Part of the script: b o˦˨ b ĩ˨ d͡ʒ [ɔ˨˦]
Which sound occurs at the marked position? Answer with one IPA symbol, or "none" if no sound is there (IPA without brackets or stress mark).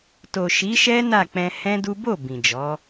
ɔ˨˦